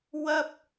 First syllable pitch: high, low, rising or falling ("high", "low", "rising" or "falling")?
high